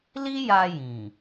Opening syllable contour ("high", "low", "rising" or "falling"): high